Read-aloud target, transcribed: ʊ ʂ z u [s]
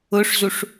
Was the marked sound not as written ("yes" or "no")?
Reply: yes